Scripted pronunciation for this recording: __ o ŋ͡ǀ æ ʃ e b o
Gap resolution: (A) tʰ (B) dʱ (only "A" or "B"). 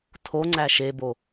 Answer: A